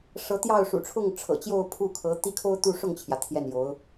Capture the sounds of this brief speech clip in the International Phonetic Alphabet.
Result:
ʂɤ˧˥t̪jɑ˥˩ʊ̯ ʂṵ˨˩ʈ͡ʂʰʊ˥˩ŋ ʈ͡ʂʰɤ̰˨˩t͡ɕjo˥˧ʊ̯ pʰu˥˩kʰɤ˧˥ t̪i˥˩kʰo˥ʊ̯t̪u˥˧ ʂʊ˥˩ŋt͡ɕʰjä˩ t̪ʰjɛ˥˩njo˧˥ʊ̯

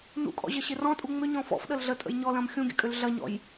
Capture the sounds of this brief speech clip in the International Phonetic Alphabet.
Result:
nṵkʼɔ̰ʑɐɕɪ rɔ̃tʼu ŋ͡mʏɲɔ̃ fɔ̰fɗəl ɮətʼə̰j ɲɔlɐ̃m xʲũɡʲə̰kʼʏl ɮɐɲɔ̰j

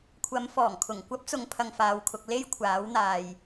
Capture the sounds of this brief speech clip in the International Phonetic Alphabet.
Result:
kʷʰɐ˨˧mfɔː˨˩ŋkʰʊ˨˩ŋ kʷɐ˥p̚t͡sʊ˨˧ŋpʰɐ˨ŋ faː˨wkʰʊ˧k̚ le˥jkʷʰaː˨˥wn̪aː˨j

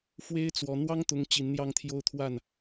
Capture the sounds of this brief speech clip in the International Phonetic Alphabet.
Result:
fwe˥ɪ̯t͡swɔ˧˥ n̪wɑ˥ŋt̪ʊ˧˥ŋ t͡ɕi˧˥nn̪jɑ˥˧ŋt̪ʰjo˥˧ʊ̯t̪ʰwa˥˩n

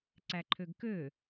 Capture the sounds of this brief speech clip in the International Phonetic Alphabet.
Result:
ǀæǃʰøɡkø

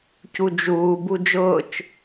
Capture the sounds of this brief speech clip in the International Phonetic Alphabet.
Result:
cud͡ʒuː bud͡ʒʊːt͡ʃ

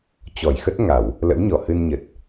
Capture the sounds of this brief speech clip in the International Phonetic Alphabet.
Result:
t͡ɕɔ˧˩jxə˦˥t̚ŋa˧˩˨w | lə̰˧˥wɲɔ˧˩ hɨ˧nɲə˨˩t̚

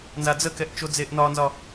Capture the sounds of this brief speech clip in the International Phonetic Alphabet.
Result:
nzad͡zəkɛʔ t͡ʃod͡zeʔnɒnzɒ

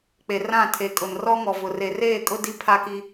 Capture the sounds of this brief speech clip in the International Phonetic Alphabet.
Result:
k͡pe˨rã˦˨ tʰe˨kʼʊ˨n rɔ˦ŋɔ˨vʊ˨ re˨reː˦˨kʼʊ˦ di˦ pʰa˦ki˦

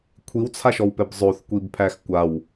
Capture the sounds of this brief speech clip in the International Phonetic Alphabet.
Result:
kʷʰiwt͡sʰaʃɔwpɛb zˤoθkʷibpʰæx kʷaw

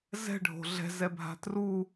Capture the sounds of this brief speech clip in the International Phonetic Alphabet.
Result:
zɛ̤ɖʱo̤ ɮɛ̤zɛbʱa̤ tru

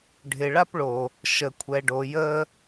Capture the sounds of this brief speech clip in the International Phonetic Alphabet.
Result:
ɖʱɪ˨ɭa˦pɭo˨ | ʃə˨kʷʰɛ˨ɖo˨ jə˦

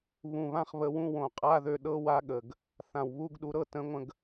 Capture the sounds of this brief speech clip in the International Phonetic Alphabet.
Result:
βũ˨˩βã˥˧χβə˨˥wũ˧˥˧ wõ˨˩qʼa˧˥˧ðø˧ ɗɤ˧˥˧wa˨˥ɠə˨˩ɡ | θã˨˩wβu˧˥˧ɡɗu˧ɾɤ˥˧ tə̃˨˥ŋʷə̃˧ɡ

